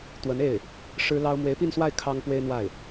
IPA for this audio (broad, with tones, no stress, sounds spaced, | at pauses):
t̪ w ə˧˥ n e˥˩ ɪ̯ | ʂ ɻ̩˥ l ɑ˥ ʊ̯ m w e˧˥ ɪ̯ p i˥˧ n s w a˥˩ ɪ̯ kʰ ɑ˥ ŋ p w e˥ ɪ̯ n̪ w a˥˩ ɪ̯